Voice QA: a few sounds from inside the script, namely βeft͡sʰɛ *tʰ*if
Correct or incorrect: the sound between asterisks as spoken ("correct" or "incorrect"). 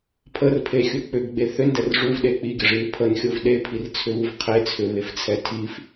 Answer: correct